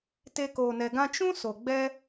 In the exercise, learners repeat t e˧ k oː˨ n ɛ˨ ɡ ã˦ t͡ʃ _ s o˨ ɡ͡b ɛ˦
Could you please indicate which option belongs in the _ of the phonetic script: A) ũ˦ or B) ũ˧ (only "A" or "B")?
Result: A